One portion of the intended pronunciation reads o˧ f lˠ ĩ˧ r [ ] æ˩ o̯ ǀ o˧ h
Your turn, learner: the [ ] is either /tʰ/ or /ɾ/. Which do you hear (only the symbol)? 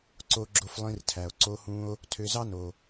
tʰ